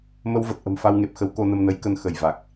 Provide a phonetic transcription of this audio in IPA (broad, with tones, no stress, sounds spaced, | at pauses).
m ə˧ w v ə˨˩ t̚ ʔ ə̤˨˩ m f a˧ w ŋ e˨˩ p̚ x ə˨˦ w k o˧ n ə˧ m n ə˨˦ j k ə˧ n x ə˧˩ j v a˨˩ k̚